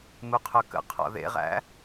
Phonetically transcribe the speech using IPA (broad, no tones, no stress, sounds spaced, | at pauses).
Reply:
m u qʰ œ k ə̰ qʰ ɔ̰ ð ḛ ʁ æ̰